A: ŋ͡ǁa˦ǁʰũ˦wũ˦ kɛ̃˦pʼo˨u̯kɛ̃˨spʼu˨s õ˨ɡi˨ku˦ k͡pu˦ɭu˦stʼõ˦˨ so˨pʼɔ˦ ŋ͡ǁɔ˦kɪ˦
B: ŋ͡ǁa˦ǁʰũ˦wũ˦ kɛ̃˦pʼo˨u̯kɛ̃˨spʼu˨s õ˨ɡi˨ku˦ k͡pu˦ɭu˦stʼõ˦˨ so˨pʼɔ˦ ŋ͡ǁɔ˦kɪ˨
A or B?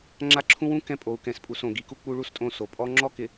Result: B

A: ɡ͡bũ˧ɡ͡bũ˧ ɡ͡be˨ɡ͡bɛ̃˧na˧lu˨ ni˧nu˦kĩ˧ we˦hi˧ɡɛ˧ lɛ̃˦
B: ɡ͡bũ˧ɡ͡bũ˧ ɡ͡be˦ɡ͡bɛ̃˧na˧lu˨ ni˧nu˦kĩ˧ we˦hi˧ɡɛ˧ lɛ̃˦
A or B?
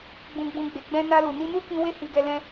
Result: A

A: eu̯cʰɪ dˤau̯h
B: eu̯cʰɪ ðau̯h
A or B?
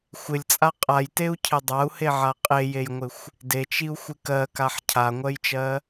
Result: A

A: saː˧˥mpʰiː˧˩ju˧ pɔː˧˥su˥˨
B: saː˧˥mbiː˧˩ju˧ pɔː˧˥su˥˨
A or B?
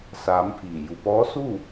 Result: A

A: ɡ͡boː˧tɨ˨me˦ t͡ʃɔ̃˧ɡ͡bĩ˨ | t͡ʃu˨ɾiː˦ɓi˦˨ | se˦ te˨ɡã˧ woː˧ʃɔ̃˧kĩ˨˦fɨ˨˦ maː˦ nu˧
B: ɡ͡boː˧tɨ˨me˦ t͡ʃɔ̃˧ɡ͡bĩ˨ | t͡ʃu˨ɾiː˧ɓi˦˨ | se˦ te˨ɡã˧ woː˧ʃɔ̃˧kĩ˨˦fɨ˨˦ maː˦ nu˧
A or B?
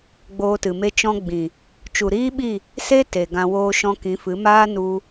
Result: A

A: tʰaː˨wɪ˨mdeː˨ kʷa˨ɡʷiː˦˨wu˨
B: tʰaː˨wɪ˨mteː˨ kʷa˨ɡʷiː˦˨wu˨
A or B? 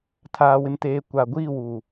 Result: B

